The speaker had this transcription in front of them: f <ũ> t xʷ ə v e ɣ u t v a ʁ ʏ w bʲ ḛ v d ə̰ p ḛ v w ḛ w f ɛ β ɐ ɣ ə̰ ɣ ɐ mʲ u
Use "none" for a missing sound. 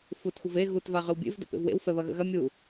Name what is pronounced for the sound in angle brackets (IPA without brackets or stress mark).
u